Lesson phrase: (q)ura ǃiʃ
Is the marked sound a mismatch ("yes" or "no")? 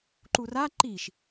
yes